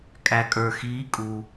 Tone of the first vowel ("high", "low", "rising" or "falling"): low